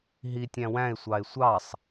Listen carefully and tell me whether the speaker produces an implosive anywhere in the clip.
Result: no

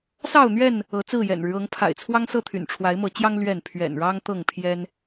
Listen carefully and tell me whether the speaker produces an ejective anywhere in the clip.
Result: no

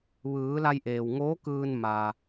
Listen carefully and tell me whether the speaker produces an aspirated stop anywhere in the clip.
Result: no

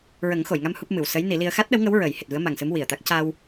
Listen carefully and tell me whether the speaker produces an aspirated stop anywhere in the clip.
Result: no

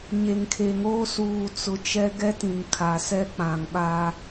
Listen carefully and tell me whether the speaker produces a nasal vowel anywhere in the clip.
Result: yes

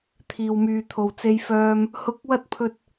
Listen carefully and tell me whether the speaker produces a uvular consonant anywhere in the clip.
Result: no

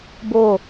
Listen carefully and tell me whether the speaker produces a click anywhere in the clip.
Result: no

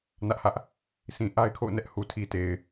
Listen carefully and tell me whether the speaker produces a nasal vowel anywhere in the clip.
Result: yes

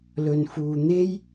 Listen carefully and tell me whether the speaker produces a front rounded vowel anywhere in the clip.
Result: no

